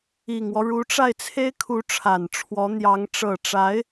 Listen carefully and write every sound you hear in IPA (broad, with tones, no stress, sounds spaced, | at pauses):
i˨˩ ŋ w ɔ˦ ɻ u˧˥ ʈ͡ʂ a˥˩ ɪ̯ t͡sʰ e˥ ɪ̯ kʰ u˧˥ ʈ͡ʂʰ a˨˩ n ʈ͡ʂʰ w ɔ˧˥ n̪ j ɑ˧˥ ŋ ʈ͡ʂ ɤ˨˩ ʈ͡ʂ a˧˥ ɪ̯